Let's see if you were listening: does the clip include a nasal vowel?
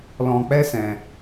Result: yes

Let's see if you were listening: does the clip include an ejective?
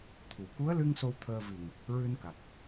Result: no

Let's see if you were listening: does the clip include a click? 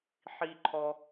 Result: yes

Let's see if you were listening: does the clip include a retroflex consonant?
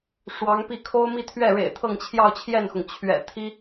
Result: yes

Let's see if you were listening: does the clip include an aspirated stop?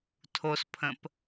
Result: yes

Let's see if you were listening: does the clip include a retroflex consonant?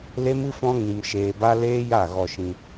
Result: no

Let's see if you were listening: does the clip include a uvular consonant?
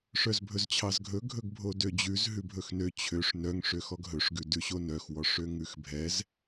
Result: no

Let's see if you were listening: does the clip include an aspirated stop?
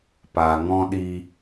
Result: no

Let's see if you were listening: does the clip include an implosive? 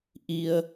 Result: no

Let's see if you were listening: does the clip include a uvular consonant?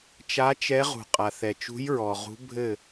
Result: yes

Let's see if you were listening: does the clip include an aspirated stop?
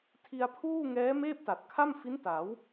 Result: yes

